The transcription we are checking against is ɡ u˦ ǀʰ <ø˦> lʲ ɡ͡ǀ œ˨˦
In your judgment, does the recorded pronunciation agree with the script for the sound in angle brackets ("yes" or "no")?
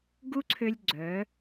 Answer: yes